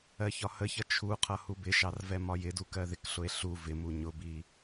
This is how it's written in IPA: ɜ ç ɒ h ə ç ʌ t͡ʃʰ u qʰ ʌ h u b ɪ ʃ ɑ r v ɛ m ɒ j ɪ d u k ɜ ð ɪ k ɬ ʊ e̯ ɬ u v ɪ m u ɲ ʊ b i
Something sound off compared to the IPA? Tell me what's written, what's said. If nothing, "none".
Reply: none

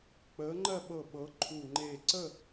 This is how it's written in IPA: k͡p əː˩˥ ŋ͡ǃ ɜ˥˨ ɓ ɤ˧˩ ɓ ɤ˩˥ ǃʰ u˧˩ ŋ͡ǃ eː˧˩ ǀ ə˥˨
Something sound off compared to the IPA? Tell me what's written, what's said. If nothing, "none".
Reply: none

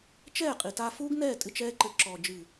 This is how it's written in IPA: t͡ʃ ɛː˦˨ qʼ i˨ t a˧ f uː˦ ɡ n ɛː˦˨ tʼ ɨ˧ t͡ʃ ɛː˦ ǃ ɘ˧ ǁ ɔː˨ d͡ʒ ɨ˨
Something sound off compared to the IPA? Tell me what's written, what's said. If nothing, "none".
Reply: none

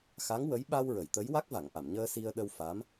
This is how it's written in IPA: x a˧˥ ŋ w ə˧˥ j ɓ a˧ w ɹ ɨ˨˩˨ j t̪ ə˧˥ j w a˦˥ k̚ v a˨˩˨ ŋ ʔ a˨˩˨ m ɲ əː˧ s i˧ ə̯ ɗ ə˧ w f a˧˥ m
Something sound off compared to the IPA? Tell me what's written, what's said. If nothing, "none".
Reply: ɨ˨˩˨ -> ə˨˩˨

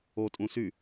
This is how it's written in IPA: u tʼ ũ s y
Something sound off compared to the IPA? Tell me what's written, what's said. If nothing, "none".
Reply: u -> o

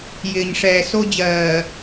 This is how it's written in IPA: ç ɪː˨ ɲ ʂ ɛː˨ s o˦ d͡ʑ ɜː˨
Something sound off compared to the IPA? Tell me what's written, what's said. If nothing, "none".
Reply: ç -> j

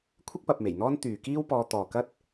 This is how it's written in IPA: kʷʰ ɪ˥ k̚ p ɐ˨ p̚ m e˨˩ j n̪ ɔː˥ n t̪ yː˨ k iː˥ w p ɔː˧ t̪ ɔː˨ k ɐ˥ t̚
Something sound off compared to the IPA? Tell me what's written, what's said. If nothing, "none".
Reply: none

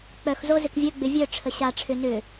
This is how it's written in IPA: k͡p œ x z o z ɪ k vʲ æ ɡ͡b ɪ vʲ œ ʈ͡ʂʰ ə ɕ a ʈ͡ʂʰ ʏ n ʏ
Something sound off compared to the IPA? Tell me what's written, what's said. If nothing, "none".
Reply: æ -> œ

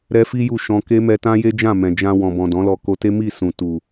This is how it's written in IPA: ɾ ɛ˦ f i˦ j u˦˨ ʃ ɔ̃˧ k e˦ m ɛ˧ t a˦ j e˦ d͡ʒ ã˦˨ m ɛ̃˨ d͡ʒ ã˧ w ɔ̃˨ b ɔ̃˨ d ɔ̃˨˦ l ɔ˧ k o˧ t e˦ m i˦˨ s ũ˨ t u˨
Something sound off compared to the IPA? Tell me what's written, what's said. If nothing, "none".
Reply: a˦ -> ã˦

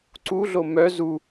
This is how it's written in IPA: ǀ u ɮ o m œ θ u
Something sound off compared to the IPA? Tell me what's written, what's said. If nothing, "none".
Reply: θ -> z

